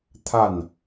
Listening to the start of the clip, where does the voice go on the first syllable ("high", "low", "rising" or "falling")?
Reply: falling